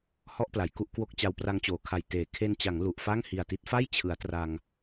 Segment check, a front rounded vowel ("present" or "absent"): absent